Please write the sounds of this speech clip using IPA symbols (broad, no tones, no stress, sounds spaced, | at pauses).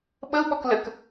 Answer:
ɓ ə u̯ ɓ ɔ k l ə k